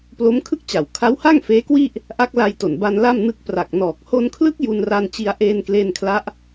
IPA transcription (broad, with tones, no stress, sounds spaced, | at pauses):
p l o˦˥ m kʰ ɯ˥˩ k̚ t͡ɕ a˨˩ w kʰ a˦˥ w h a˥˩ ŋ f eː˦˥ k w i˥˩ ʔ | ʔ a˦˥ k̚ l a˧ j t o˨˩ n b a˧ n l a˥˩ m n ɯ˦˥ k̚ p r a˨˩ k̚ n ɔː˨˩ k̚ h o˧ n kʰ l ɯ˦˥ k̚ j u˧ n r a˧ n t͡ɕ i˧ a̯ ʔ eː˧ n k l e˧ n kʰ l a˦˥ ʔ